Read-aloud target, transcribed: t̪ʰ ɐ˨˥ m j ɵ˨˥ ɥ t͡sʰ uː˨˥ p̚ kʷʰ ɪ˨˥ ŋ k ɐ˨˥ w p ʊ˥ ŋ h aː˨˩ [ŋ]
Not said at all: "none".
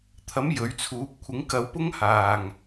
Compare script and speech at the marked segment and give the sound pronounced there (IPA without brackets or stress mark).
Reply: ŋ